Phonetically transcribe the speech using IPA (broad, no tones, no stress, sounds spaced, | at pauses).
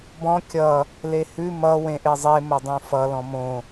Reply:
b ɔ̃ kʲ ʌ | l e h ʉ m ʌ w ẽ ʔ e zˤ e m ʌ dˤ õ f ʌ l ɔ̃ m õ